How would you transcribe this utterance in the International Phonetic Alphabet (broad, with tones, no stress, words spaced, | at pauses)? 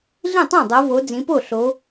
ɮĩ˥˩tˤã˥˩dˤo˨˦vo˨˦ d͡zĩ˨˦po˥˩ ɬo˨˦